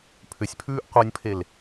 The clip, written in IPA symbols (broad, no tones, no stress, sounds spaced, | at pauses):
pʰ ʏ sʲ pʰ ʉː ʔ qʷ ɤ nʲ pʰ e l